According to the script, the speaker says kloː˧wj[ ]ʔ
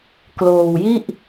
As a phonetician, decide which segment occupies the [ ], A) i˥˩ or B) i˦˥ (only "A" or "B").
A